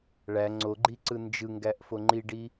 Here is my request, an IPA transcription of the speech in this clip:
ɭ æ ŋ͡ǀ o ɡ͡ǃ i ǀ ɯ n d͡ʒ ɯ ŋ ɡ æ ʔ f o ŋ͡ǃ i ɖ i

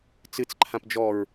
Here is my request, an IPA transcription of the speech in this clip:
t͡s ɨ t͡s ǃʰ ã p d͡ʒ ɔ ɹ

